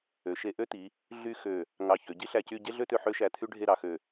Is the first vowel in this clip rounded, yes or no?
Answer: yes